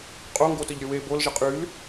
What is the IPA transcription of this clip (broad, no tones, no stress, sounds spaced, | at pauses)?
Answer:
qʼ o ŋ ɡ o t ə ʎ ɾʲ ɔ w e b o l ʒ ə qʼ y l